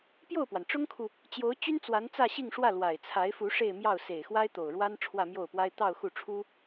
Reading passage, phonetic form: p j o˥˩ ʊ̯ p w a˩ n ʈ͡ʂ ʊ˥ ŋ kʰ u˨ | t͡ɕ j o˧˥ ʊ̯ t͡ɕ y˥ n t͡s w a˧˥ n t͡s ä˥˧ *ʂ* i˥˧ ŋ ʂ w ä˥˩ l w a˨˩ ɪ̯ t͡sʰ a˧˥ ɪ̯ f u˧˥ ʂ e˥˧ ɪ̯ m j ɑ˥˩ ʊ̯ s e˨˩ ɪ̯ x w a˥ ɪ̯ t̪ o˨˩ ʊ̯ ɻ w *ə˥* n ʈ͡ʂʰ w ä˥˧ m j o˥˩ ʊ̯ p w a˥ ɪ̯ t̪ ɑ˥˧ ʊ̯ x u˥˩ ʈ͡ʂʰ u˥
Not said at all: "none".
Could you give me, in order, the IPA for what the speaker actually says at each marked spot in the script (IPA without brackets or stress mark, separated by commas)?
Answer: ɕ, a˥